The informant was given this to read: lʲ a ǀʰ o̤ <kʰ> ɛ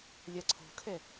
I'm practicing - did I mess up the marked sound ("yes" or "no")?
no